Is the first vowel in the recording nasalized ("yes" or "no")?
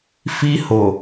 no